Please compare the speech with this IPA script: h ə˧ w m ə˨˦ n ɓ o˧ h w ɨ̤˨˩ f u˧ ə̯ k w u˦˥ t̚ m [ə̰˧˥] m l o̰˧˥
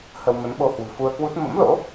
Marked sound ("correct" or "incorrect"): correct